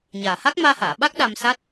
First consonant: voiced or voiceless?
voiced